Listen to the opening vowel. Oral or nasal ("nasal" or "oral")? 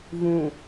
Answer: nasal